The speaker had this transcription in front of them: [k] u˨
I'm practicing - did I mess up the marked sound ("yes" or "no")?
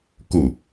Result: no